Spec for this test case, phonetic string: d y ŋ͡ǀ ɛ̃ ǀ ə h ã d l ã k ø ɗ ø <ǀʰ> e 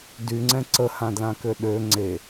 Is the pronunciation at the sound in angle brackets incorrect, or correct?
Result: incorrect